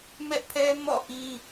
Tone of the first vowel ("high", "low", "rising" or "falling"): high